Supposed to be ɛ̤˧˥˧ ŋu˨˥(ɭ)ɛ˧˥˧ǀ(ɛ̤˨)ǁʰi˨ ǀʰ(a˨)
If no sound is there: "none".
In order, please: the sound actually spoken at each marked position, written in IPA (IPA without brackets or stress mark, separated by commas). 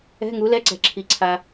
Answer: l, ɛ̤˨, a˨